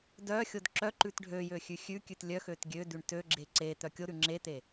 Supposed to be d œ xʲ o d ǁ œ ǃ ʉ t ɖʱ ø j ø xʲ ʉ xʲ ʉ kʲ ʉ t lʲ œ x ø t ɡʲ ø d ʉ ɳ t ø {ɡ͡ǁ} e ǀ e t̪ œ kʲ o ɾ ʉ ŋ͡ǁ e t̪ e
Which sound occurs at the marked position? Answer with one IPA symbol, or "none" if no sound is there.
ɡ͡ǁ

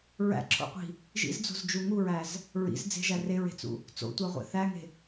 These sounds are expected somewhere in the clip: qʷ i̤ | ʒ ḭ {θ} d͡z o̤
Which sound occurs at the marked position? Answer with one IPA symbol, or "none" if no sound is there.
z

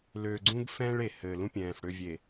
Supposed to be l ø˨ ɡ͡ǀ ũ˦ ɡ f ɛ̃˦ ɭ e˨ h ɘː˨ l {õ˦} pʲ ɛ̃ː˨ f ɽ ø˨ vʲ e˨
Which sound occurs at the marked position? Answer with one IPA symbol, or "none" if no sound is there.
ũ˦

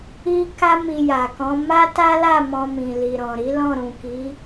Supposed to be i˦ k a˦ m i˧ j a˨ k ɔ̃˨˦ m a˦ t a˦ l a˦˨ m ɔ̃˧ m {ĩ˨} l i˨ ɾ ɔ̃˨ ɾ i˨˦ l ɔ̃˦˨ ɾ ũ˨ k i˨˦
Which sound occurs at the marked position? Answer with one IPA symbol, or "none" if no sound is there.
ĩ˨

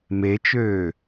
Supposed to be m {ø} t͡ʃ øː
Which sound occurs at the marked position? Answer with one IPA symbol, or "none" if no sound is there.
e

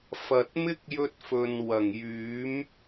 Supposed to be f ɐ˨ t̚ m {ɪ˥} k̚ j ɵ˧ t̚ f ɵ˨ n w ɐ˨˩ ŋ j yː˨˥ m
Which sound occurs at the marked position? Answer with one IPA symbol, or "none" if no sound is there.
ɪ˥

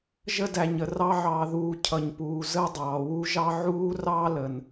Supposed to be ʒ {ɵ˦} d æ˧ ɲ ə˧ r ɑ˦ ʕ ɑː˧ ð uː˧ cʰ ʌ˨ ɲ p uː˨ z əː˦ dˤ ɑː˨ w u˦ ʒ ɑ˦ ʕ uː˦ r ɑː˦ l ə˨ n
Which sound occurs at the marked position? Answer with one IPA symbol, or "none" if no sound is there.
ə˦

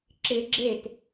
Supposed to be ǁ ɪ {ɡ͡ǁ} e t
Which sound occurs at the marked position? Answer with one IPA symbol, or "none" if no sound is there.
ɡ͡ǁ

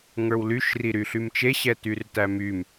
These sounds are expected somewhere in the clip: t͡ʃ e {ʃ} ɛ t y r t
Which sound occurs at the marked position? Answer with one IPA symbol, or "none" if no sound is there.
ɕ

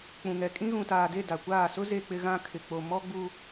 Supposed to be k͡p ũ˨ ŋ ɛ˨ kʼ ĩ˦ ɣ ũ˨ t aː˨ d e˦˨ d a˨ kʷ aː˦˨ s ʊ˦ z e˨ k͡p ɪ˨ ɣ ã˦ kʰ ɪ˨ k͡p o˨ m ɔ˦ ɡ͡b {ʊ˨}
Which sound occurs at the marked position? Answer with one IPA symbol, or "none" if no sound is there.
u˨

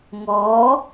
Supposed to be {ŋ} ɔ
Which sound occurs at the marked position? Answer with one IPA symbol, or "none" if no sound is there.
ŋ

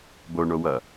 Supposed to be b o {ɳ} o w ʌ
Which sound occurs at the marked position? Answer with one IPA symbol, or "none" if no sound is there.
ɳ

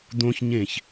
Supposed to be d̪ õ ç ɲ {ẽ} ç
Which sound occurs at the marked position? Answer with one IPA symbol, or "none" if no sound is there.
ẽ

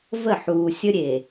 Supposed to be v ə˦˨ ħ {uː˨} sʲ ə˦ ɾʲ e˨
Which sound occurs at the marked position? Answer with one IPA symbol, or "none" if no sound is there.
uː˨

